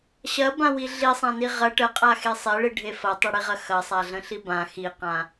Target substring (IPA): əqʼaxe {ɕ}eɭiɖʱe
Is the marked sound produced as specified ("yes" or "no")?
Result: no